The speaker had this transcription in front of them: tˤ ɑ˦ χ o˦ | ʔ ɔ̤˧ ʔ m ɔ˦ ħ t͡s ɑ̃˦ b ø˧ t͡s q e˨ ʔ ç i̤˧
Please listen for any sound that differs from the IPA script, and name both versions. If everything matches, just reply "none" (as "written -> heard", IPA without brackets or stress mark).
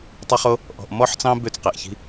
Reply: none